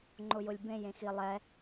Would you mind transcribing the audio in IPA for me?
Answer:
ŋ͡ǃ ʊ j ʊ lʲ b ẽ j ẽ x i lˠ ɛ

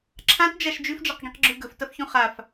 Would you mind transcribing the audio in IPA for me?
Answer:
ǁʰ ã t d͡ʒ a ʃ d͡ʒ ʉ f d͡ʒ a q ɡ ĩ q ɡ͡ǁ ʉ ɡ ɵ f t ɐ f ç ũ χ a f

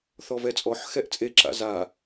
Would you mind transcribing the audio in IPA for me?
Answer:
θ ɔ v ɛ t͡sʼ ɔ ħ x ɛ ʔ t͡sʼ e ǁ a̰ z a

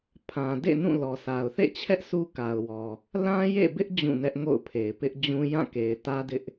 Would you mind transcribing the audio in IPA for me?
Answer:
pʰ ã˨ d ḛ˦˨ n ũ˦˨ l ɔ˨ s a˨ ʊ̯ θ ḛ˦˨ t͡ɕʰ ɛ˦ ʔ sʰ u˦ k a˨ ʊ̯ w ɔ˨ | l ã˦ j ḛ˦˨ b ɪ˦ ʔ d͡ʑ ũ˦˨ n ɛ˦ ʔ ŋ o̰˦˨ ʊ̯ pʰ e˨ ɪ̯ p ɪ˦ ʔ d͡ʑ ũ˦ j ã˦˨ k e˨ ɪ̯ t ä˦ d ɪ˦ ʔ

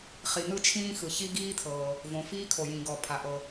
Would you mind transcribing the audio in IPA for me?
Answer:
χ i˩ n̪ ɯ˥ t͡ʃʰ ĩː˥ x ɯ˩ ç i˥ ɡ iː˥ t̪ʰ ɤː˩ | v õ˩ f iː˥ kʰ o˩ j ĩ˩ ɡ ɔ˩ pʰ a˩ ʔ ɤ˩

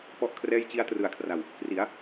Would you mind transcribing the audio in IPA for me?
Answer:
p ɔ˥˩ ʔ kʰ r ɛː˥˩ j t͡ɕ i˦˥ a̯ t r ɯ˨˩ a̯ kʰ r a˨˩ w | k r i˩˦ a̯

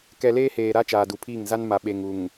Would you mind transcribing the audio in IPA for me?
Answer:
k ɛ˨ l eː˦ h eː˨ ɾ a˦ t͡ʃ aː˨ d u˨ pʰ iː˦˨ ŋ z a˦ n m a˨ ɓ e˨ ŋ u˨ ŋ

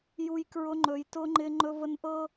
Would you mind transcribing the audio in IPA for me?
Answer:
j u˦ j k ɹ ʊ˦ ŋ͡ǃ ɵ˦ j t ʊ˦ ŋ͡ǃ ɪ˦ ŋ͡ǃ ɵ˦ v ə˦ n ʔ ɤ˦

